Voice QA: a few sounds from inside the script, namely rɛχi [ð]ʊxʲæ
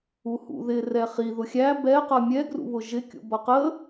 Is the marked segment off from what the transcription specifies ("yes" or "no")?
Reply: no